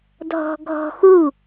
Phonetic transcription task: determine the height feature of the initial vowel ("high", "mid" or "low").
mid